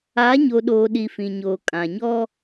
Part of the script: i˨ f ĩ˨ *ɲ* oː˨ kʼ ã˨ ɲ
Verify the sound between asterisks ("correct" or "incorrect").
correct